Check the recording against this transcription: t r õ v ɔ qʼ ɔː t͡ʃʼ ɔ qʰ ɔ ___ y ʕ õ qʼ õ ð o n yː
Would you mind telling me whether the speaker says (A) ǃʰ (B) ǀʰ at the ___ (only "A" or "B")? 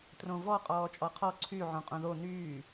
B